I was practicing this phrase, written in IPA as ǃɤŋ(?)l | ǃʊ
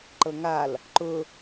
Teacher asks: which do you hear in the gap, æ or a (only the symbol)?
a